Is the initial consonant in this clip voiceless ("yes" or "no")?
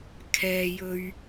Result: yes